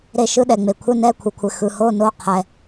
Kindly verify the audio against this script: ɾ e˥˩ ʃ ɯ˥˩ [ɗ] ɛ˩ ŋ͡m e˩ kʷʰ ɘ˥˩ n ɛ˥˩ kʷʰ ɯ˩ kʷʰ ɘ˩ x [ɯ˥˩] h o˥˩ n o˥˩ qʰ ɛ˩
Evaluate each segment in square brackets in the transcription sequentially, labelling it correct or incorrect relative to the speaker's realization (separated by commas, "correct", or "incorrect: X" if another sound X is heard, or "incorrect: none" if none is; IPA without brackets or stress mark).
correct, incorrect: ɯ˩